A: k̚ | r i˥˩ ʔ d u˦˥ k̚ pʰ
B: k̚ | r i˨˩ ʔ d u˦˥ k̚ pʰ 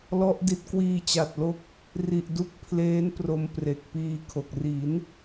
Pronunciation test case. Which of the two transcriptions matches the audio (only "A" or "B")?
B